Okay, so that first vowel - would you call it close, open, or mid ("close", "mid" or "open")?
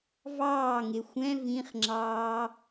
open